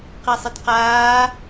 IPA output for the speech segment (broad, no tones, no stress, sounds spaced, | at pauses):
q i sˤ ɨ t q aː